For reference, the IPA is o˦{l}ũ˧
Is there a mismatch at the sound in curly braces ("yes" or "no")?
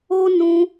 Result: yes